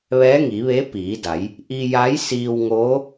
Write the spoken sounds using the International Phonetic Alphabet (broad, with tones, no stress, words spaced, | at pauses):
ʋɛː˧˥ŋi˩˧ʋe˧˥ piː˩˧da˩˧j | ʔi˧ja˧˥jsiː˧wŋoː˧˥